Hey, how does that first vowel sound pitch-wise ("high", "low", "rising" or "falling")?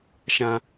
high